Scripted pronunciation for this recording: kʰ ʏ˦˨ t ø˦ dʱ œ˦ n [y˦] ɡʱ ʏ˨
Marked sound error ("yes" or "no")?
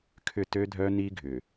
yes